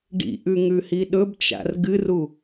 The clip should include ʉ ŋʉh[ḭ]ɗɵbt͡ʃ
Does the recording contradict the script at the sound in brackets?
yes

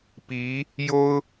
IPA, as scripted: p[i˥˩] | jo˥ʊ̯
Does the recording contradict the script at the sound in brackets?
yes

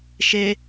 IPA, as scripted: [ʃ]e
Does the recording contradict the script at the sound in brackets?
no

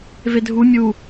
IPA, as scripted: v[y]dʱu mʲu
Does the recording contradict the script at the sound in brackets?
yes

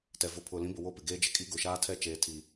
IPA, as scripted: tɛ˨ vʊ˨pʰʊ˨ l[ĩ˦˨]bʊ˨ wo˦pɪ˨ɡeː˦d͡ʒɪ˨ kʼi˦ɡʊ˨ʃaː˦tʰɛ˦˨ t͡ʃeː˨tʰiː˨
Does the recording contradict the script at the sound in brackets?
yes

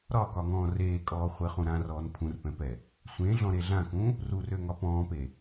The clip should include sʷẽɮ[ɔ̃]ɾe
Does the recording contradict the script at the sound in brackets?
no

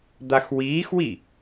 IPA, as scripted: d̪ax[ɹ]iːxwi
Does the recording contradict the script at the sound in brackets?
yes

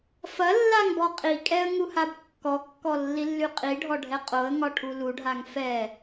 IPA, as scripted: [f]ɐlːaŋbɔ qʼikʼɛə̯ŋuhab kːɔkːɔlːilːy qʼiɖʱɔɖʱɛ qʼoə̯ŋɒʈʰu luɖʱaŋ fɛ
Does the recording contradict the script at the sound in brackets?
no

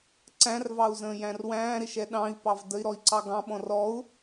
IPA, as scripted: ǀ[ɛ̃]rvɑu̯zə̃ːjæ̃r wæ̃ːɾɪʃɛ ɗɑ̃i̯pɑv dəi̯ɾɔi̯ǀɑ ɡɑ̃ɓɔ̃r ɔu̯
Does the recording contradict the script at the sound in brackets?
yes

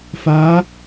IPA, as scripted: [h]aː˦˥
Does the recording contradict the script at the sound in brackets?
yes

